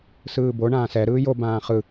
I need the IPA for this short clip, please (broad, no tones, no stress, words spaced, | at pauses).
sɯːbo ɳãːsɛ ɾɯːjo bãːχɯ